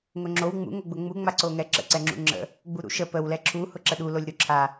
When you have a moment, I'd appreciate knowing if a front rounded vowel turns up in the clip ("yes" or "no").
no